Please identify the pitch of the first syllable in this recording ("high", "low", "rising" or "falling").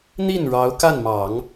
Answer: falling